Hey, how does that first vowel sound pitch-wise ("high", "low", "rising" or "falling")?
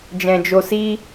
low